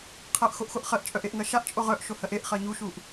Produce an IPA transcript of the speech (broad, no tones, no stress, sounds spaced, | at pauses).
qʰ ɜ ʔ x o ʔ x o ʔ χ ɜ ʔ t͡ʃʼ œ ʔ e ʔ ŋ ɜ ʃ a ʔ t͡ʃʼ o ʁ œ ʔ ʃ o h ɜ ʔ e ʔ χ ɜ ɲ u ʃ u ʔ